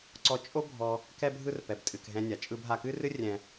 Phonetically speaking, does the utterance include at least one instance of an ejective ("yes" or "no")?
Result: yes